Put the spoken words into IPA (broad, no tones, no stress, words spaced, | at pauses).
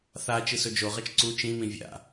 θa t͡ʃɨsɵd͡ʒoʁɐt͡ʃ ǀu t͡ʃĩmĩ vʲa̰